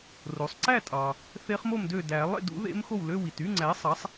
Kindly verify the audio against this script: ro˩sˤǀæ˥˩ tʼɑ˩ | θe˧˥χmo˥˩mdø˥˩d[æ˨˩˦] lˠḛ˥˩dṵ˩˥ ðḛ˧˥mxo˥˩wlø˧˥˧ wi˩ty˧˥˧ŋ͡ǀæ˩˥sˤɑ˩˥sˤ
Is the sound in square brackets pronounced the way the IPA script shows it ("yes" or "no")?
yes